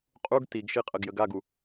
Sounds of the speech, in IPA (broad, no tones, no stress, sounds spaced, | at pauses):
qʼ u ɡ t i ɡ ʃ i qʼ ə ɡ j ə ɡ a ɡ u